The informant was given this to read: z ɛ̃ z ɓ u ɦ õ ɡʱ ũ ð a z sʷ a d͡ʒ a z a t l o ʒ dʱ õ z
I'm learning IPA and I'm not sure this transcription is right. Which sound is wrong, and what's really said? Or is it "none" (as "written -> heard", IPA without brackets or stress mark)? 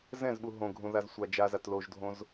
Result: none